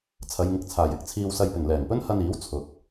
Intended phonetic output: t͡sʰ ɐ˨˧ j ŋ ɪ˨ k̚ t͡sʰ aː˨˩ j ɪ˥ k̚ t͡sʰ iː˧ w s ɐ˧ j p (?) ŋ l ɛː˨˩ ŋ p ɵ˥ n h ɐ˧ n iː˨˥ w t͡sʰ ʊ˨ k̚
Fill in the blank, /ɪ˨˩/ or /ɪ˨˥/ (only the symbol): ɪ˨˩